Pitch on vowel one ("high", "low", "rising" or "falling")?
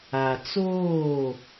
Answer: low